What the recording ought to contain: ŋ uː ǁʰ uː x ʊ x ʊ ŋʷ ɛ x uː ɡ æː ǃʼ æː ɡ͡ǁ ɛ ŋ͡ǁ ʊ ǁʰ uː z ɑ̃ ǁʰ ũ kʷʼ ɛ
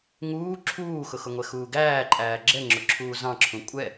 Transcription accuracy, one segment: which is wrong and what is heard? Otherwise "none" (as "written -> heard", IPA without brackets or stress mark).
none